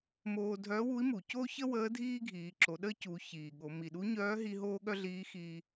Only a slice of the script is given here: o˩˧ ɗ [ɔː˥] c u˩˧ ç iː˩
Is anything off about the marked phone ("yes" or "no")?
yes